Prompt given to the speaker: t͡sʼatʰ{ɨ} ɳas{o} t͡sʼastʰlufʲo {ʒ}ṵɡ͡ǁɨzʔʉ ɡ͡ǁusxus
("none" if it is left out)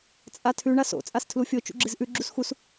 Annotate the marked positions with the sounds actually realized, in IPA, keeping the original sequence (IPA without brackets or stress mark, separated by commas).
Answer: ʉ, o̰, t͡ʃ